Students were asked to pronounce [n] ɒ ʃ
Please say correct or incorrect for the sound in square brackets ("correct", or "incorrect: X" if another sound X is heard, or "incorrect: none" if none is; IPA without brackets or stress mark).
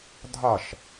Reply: incorrect: dʱ